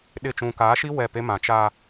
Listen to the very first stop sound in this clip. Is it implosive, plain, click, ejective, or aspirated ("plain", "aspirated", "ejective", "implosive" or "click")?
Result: implosive